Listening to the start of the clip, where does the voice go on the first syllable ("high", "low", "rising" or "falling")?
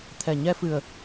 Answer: low